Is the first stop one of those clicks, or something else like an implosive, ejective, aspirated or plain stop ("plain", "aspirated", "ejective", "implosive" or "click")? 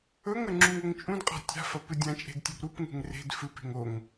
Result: click